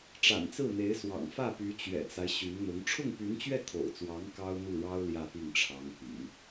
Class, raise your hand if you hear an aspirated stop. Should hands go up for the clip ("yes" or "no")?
yes